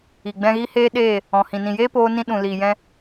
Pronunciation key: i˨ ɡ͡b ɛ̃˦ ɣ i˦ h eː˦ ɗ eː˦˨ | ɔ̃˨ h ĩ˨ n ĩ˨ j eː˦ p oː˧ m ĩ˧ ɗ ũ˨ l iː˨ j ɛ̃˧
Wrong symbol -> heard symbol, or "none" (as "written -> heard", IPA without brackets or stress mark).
m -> n